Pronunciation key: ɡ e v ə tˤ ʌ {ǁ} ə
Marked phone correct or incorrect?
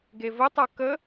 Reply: incorrect: k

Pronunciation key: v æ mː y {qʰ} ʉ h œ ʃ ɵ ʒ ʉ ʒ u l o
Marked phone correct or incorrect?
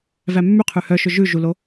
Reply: correct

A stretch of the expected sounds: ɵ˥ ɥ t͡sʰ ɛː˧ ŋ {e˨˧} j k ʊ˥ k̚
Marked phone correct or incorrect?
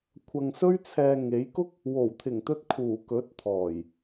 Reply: correct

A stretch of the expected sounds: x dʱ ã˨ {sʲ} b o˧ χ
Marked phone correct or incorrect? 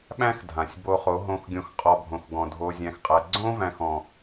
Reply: correct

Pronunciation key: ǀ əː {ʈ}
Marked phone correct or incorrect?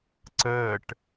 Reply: correct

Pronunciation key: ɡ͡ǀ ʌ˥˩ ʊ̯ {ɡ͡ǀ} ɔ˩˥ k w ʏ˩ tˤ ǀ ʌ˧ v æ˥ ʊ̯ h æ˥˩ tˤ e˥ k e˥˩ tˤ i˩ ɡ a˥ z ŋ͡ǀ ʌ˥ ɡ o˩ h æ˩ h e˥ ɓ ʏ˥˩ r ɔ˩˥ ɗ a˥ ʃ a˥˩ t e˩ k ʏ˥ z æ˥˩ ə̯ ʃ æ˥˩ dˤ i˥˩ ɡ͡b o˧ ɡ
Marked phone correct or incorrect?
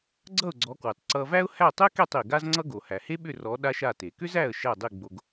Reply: correct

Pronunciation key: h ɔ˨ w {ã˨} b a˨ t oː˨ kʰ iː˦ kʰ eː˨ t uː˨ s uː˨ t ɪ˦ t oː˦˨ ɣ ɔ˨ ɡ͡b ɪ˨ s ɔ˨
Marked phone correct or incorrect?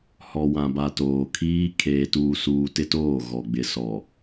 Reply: correct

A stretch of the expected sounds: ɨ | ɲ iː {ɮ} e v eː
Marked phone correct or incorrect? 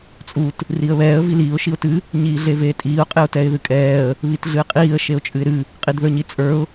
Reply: correct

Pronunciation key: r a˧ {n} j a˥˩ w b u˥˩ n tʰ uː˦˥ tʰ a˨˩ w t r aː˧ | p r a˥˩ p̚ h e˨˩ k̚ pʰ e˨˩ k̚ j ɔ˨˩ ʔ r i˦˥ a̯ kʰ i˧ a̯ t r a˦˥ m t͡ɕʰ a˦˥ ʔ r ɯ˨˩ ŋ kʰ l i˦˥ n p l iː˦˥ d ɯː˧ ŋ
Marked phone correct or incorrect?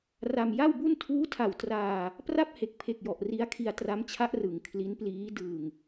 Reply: incorrect: m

